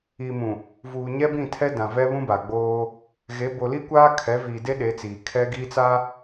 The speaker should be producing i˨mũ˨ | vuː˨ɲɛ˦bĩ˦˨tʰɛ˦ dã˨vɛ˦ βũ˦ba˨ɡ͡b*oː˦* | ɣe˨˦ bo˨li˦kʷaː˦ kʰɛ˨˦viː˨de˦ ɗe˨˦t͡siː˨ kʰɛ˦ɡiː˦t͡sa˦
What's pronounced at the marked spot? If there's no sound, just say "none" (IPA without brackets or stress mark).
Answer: oː˦